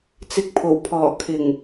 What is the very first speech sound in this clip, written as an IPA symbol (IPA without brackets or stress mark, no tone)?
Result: t͡s